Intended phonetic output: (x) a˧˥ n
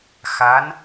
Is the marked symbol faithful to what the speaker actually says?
yes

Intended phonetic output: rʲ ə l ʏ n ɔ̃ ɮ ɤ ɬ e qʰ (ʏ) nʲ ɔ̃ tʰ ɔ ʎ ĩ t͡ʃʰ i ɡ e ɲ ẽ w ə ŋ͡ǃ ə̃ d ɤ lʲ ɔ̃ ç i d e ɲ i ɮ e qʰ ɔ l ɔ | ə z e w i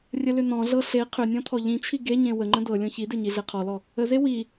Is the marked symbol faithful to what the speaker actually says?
yes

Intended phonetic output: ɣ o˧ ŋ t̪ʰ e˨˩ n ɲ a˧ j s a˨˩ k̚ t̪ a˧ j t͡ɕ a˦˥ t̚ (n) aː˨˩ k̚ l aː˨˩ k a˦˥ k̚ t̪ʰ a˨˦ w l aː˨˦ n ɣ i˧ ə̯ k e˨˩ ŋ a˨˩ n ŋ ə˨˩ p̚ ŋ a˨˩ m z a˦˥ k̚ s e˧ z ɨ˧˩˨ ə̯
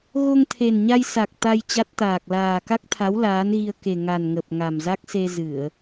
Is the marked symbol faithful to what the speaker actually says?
no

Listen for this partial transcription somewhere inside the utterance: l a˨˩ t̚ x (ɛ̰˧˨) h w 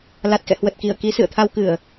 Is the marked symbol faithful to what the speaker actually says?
yes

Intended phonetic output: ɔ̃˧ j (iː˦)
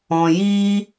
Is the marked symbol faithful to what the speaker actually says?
yes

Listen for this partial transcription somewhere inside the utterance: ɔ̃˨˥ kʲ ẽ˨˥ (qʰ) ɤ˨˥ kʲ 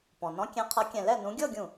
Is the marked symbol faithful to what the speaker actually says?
yes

